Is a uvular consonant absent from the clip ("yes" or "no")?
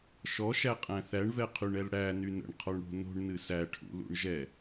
no